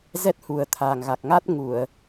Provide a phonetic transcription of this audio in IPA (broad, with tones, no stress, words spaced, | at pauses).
zɛ˦˥t̚hu˨˩ə̯t̪ʰaː˨˩ŋ ɣa˨˩k̚ŋa˦˥t̚ ŋu˧˩˨ə̯